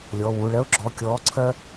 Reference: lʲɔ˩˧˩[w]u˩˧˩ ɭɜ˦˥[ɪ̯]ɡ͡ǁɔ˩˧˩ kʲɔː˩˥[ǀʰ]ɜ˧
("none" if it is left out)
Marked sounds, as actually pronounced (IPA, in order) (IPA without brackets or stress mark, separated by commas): w, ʊ̯, ǀʰ